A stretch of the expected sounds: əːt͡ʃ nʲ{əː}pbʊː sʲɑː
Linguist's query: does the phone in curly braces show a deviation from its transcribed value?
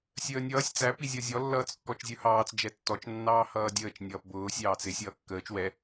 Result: yes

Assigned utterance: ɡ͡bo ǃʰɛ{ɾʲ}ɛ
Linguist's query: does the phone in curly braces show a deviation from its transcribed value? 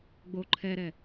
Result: yes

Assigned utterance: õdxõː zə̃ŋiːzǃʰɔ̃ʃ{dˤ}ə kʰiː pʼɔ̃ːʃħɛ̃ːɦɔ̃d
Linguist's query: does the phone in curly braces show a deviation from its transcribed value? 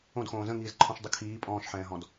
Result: no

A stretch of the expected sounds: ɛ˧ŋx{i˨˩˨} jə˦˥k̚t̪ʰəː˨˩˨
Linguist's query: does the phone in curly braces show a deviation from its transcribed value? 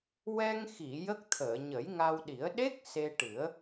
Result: no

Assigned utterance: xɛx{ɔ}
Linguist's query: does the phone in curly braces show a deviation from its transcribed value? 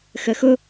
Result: yes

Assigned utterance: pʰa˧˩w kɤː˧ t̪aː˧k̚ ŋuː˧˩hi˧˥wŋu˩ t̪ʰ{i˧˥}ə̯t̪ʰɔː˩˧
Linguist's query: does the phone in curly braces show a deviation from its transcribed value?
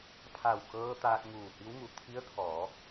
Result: no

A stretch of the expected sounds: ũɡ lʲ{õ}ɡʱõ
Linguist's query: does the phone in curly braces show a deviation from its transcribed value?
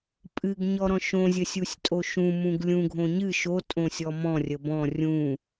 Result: yes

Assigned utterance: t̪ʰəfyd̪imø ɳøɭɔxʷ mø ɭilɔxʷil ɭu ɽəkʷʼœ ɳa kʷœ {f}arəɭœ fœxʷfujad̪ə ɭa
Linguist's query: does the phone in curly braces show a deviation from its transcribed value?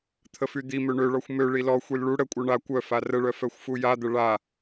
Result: no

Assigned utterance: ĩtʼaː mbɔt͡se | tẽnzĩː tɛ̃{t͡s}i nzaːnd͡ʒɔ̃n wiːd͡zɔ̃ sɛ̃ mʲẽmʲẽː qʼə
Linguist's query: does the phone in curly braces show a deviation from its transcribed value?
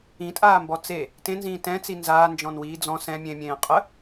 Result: no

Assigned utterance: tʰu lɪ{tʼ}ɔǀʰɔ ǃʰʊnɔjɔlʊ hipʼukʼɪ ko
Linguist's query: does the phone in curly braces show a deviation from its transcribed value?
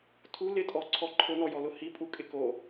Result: no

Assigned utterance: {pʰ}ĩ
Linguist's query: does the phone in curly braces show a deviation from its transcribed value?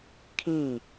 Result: yes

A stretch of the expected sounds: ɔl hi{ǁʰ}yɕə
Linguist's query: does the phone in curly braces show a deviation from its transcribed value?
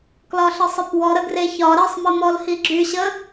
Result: yes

